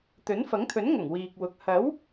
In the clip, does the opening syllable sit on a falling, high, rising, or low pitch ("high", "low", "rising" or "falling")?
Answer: rising